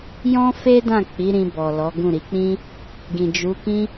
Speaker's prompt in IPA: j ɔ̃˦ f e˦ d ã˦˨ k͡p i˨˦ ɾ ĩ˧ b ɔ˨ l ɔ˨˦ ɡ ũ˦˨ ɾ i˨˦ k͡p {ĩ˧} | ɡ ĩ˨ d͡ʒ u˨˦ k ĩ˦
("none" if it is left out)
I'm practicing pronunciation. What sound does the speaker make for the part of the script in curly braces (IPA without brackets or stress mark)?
ĩ˦